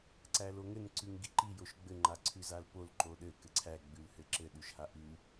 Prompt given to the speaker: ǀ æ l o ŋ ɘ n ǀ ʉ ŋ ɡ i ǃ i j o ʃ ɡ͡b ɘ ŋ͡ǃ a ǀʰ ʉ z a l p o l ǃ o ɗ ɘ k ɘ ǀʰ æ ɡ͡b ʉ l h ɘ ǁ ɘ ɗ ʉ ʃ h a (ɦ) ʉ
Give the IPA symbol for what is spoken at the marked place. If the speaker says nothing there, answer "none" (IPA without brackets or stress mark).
ʔ